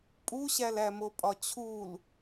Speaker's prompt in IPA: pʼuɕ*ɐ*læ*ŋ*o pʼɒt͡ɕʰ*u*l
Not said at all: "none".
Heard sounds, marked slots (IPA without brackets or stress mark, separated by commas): æ, m, u